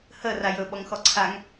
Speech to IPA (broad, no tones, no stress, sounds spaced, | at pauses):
h ə r a j ɵ ɓ ɔ ŋ x ɔ ǀʰ a ŋ